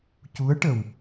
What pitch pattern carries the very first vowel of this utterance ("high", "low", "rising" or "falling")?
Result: rising